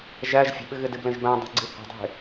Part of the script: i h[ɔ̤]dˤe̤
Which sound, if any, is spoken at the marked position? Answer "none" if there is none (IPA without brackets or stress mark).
ə̤